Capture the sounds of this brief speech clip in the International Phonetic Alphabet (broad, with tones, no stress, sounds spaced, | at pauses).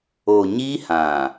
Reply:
o˨ ɲ i˦ h ã˨